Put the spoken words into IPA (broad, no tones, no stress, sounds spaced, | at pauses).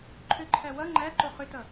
ǃʰ ʏ ǃʰ æ w ʌ ŋ͡ǃ æ ǃ o χ ʏ t ʌ